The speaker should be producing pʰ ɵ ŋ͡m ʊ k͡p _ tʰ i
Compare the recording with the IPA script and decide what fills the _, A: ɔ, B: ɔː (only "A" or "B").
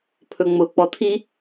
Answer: A